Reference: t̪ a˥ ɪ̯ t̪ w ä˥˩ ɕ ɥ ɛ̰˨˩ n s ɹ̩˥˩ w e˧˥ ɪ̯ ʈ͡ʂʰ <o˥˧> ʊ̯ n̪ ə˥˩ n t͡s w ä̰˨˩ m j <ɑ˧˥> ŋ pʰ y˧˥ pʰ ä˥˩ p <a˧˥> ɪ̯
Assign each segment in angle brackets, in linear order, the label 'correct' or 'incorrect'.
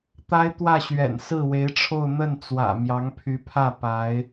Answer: correct, correct, correct

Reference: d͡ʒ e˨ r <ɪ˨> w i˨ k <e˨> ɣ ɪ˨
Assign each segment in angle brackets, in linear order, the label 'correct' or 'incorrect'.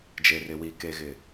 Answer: correct, correct

